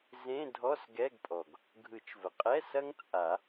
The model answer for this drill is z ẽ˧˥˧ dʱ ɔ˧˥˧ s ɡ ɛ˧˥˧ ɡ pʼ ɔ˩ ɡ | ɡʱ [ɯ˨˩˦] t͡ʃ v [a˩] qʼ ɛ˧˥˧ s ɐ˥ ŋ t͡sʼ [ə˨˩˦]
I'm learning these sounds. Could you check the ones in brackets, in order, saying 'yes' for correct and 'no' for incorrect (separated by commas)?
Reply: yes, no, no